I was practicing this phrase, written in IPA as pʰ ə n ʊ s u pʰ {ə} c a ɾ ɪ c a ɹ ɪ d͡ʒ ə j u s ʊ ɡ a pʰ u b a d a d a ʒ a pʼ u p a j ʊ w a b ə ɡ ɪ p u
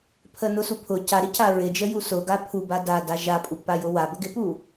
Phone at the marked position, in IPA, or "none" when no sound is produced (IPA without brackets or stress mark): ʊ